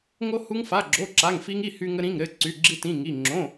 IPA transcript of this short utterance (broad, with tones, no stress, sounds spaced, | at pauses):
ŋ o˥ h u˥ ŋ f a˧˥˧ ɡ͡ǁ o˧˥˧ ǁ a˧˥˧ ŋ f i˥ ŋ i˧˥˧ h y˥ ŋ ə˥ ɾ ĩ˧˥˧ ŋ ɾ ɘ˧˥˧ ǀ y˧˥˧ ɡ͡ǁ i˥ t ĩ˧˥˧ ŋ i˧˥˧ ŋ͡ǁ õ˧˥˧